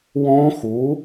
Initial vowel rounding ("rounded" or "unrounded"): rounded